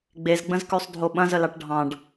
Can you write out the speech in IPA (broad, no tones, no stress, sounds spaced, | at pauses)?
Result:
ɡ͡b e z ɡ͡b ə̃ z k ʉ sˤ dʱ o ɓ ɐ̃ z ə l ɑ ʈ ɖʱ ɑ̃ ɖ